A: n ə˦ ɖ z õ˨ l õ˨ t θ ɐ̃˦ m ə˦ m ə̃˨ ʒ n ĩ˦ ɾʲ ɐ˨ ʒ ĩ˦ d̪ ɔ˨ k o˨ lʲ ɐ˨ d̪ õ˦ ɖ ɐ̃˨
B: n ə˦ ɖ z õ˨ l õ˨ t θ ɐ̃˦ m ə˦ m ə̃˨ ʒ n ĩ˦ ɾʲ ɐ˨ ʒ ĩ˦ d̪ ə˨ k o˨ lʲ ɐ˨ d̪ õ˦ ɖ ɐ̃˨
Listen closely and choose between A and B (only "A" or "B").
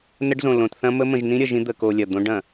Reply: B